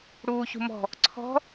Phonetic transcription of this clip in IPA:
ɽuːçṳmɔ̤ | ǀʰɔ̤

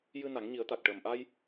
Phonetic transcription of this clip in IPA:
jɨ˧ na˨˩˦ŋɲi˨˩˦ə̯t̪a˨˩k̚ ʈəː˨˩mʔa˧j

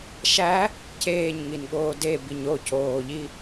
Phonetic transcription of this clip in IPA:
ʃæ | ceːɲŋinɠoː debiɲ ocoːʎi

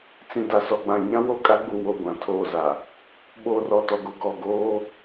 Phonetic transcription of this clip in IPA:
t͡sĩ˨da˨sɔ˨ɡ͡bã˨ ɲã˦wo˦˨kʼa˦ɡ͡bu˨ wo˦˨ɡʷã˨tʰoː˦˨za˨ | ɓoː˨rɔ˨tɔ˨ɡo˨ ɡɔ˨ɡoː˦

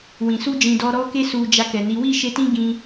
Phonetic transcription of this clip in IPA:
wĩ˨su˧ d͡ʒĩ˨dɔ˧ɾɔ˦ke˦ su˧d͡ʒa˧kɛ˨ni˨˦ wi˦˨ʃe˧tĩ˦ ɡĩ˦

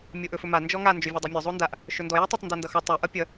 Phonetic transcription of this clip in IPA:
mʲoʔɵfɵma nd͡ʒɔŋa nd͡ʒɵvʲodˤimʲɵ zˤondaʔ | ʃɵndɔ jotˤɵtˤ ndondʌxʌ tˤɵ ʔʌpʲʌ

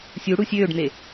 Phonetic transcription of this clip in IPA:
sʲuɽu sʲøːɖn̪e

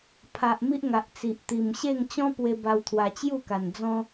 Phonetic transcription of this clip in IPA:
pʰa˨ʔ mi˦ʔŋa˨ʔt͡si˨ʔ t̪i˨˩mɕe˥˧ŋ t͡ɕɔ̃˦pwe˧ ba˧wt̪ʰwa˧t͡ɕju˥˧ ka˨˩nd͡zɔ̃˦

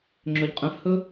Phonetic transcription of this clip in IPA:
ŋ͡ǁɵʎqʼə̃fhɵ

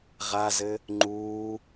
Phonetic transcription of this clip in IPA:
ʁazɘ | ŋ͡ǃuː

